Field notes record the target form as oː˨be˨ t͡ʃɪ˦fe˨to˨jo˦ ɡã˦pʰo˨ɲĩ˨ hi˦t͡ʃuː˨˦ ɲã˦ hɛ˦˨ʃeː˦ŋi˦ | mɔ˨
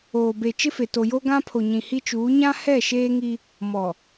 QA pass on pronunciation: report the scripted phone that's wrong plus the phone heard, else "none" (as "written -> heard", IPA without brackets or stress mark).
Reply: none